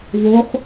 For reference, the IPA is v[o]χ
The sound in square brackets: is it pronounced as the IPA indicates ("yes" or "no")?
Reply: yes